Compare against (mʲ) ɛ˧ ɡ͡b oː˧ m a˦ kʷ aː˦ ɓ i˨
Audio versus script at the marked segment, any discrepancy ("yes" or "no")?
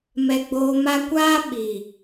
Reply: yes